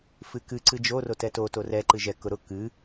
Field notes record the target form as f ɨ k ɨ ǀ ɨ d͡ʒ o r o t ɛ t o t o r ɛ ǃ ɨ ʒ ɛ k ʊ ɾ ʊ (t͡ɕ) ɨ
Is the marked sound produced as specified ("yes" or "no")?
no